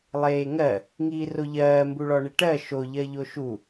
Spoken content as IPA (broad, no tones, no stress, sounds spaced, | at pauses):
lˠ eː ŋ ɜ | ŋ iː r o ʎ ɜː m b u ɭ ɔ ɳ e ʈ ɜ ʃ o ʎ ɜ ʎ o ʃ u